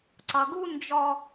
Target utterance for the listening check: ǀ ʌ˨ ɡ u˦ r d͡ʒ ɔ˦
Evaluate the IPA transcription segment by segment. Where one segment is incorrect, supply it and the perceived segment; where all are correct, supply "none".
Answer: r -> n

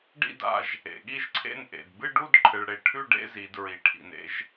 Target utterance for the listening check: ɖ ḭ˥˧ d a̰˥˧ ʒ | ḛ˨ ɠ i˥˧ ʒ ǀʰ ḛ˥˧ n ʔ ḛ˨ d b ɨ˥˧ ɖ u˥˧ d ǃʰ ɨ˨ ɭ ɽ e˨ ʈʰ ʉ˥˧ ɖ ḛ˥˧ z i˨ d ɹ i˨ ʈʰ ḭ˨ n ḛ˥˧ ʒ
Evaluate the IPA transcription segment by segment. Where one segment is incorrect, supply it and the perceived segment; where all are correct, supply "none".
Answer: none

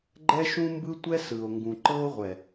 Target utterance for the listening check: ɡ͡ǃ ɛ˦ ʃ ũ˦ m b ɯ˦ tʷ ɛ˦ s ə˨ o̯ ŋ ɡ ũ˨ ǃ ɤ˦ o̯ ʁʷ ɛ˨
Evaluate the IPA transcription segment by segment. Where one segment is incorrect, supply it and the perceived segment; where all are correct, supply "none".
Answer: ə˨ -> ɯ˨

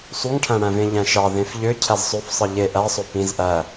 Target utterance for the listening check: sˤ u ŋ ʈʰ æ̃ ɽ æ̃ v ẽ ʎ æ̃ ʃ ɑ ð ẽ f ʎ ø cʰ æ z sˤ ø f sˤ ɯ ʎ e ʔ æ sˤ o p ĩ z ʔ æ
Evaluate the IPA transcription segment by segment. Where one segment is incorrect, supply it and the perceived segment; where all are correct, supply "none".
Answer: none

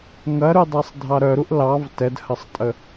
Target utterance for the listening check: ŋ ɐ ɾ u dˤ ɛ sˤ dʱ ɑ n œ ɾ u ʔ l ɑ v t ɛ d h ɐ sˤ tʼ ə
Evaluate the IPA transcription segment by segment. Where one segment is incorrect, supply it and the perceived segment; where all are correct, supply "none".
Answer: n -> ɾ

